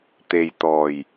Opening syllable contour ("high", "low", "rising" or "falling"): low